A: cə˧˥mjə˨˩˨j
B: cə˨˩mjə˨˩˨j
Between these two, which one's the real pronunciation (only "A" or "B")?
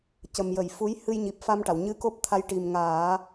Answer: B